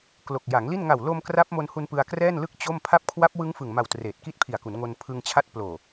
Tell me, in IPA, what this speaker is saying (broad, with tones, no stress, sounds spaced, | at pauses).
k l o˨˩ k̚ j a˩˦ ŋ l i˥˩ n ŋ a˨˩ w l o˧ m k r a˦˥ p̚ m o˧ n h u˧ n p ɯ˧ a̯ k r ɛː˥˩ n l ɯ˥˩ k̚ t͡ɕ o˥˩ m pʰ a˦˥ p̚ kʰ w a˦˥ p̚ w ɯ˦˥ ŋ f ɯ˨˩ ŋ m a˨˩ w t r eː˨˩ t̚ k i˦˥ t̚ pʰ i˨˩ a̯ k u˩˦ n ŋ o˧ n pʰ ɯ˧ ŋ t͡ɕʰ a˥˩ t̚ p l oː˨˩